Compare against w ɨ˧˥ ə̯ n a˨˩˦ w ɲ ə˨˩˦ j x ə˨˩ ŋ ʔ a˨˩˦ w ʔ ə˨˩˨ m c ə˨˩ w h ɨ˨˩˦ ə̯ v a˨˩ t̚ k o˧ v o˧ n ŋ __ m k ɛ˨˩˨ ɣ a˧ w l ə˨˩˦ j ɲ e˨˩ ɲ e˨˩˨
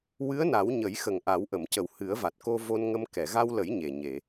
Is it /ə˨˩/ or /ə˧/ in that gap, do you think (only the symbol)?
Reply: ə˧